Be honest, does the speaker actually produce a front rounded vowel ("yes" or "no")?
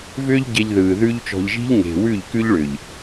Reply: yes